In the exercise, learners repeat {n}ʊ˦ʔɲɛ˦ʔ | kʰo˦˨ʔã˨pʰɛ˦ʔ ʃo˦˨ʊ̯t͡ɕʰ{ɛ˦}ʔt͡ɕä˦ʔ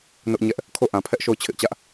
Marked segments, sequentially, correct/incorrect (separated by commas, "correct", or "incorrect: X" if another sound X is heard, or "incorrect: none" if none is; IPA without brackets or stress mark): correct, incorrect: ɪ˦